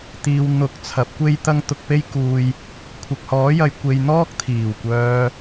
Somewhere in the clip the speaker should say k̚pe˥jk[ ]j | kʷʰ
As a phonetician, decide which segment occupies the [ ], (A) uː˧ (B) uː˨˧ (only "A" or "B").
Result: A